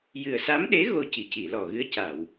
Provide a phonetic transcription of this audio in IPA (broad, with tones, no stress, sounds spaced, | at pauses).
j ɨ˨˩ ə̯ s a˧˥ m ɗ e˧˥ ɣ o˧ c i˨˩˨ c i˨˩˨ l ɔ˨˩ ɣ ɨ˧˥ ə̯ c a˨˩˨ w